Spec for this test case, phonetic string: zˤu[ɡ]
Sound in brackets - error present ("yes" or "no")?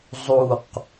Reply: yes